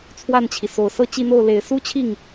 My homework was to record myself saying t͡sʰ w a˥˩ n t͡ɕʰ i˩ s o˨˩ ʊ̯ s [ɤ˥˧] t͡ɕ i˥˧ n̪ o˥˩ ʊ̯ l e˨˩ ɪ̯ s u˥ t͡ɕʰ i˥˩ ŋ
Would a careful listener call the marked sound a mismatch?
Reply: no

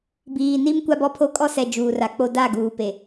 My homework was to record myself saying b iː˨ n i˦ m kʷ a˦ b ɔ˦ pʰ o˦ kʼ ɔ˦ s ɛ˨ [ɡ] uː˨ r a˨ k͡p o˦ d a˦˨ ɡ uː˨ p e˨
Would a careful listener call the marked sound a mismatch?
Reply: yes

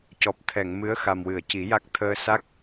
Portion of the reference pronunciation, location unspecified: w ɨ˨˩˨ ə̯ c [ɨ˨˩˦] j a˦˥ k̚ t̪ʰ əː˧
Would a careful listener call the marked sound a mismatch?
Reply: yes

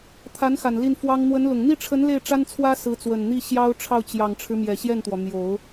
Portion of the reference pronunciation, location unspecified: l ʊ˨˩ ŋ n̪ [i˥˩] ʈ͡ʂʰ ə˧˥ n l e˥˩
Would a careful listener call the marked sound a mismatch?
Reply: no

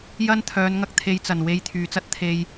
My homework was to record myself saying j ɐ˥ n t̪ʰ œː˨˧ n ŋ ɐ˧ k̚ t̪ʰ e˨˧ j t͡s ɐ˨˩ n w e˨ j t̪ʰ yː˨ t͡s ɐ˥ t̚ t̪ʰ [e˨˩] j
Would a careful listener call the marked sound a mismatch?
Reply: yes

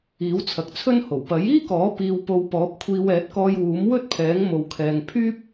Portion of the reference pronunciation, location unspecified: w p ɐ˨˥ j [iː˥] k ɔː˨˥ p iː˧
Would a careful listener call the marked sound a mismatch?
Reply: no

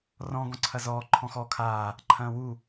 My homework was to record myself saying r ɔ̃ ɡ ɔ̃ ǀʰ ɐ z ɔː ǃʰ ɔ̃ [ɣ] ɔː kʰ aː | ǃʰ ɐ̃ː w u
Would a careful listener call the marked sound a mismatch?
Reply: yes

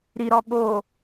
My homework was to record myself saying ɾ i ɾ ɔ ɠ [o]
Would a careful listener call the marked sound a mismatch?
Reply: no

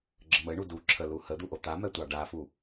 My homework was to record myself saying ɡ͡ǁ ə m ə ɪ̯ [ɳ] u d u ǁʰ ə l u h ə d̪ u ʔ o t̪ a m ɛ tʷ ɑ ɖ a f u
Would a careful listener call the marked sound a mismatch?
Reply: no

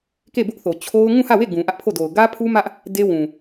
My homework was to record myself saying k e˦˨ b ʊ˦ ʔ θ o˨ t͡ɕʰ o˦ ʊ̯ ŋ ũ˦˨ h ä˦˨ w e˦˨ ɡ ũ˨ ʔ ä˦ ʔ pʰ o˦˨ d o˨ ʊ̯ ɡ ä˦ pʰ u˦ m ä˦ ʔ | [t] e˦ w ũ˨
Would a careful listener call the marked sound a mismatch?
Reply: yes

